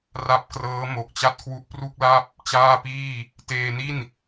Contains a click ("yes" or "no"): no